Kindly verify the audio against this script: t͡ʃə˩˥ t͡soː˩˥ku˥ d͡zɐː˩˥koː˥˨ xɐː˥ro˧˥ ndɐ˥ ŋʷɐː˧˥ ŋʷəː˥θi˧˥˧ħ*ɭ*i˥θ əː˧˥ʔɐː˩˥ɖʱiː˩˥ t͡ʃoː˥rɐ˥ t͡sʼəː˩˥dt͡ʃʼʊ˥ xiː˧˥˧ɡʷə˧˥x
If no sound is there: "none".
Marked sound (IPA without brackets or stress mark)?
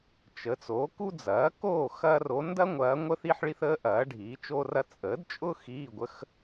ɭ